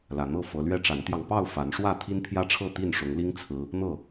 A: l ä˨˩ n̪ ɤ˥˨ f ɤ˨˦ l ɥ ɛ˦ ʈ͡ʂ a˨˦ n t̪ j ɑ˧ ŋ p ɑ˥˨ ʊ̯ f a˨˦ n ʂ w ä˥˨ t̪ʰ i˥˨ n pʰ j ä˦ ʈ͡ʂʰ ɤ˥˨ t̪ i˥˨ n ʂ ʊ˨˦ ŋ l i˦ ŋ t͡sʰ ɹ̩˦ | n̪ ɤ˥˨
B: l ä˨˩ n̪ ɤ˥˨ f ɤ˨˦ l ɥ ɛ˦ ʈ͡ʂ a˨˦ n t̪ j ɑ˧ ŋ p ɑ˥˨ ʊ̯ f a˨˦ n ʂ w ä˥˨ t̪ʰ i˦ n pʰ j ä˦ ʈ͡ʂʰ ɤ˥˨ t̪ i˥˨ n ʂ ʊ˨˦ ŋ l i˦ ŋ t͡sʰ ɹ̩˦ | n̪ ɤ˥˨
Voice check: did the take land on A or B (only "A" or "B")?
B